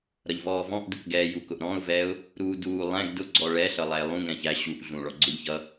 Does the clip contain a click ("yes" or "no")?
yes